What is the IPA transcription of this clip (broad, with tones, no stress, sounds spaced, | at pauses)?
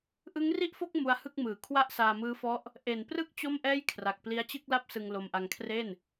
ʔ ɯ˦˥ ŋ r i˥˩ ʔ f o˥˩ k̚ m u˦˥ a̯ h ɯ˥˩ k̚ m ɯː˩˦ kʰ w a˥˩ ʔ s aː˧ m ɯː˦˥ f ɔ˦˥ ʔ | ʔ e˨˩ n p r ɯ˥˩ k̚ t͡ɕ o˥˩ m ʔ ɛː˥˩ j kʰ r a˨˩ k̚ p l i˦˥ a̯ t͡ɕ ɯ˥˩ k̚ l a˥˩ p̚ s ɯ˧ ŋ l o˧ m ʔ a˧ ŋ kʰ r e˥˩ n